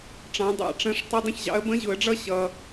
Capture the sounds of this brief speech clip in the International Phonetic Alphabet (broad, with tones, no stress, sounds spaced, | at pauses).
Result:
ʈ͡ʂ ɑ̃˨˥ dˤ ɑ̰˨˩˦ ʈ͡ʂ ə̃˧˥˧ ʂ tˤ ɪ˧˥˧ dˤ ə̃˥˨ ç ʑ ɑ̰˨˥ ə̯ b ə̃˧˥˧ ʑ ʊ˨˩˦ ə̯ ɖ͡ʐ ʌ˥˨ ɕ ʌ˨